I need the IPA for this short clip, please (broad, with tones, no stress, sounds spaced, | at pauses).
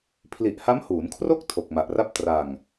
pʰ l i˨˩ ʔ h a˦˥ m h uː˩˦ n kʰ r o˥˩ k̚ tʰ o˨˩ k̚ m a˨˩ ʔ r a˥˩ p̚ t r a˧ ŋ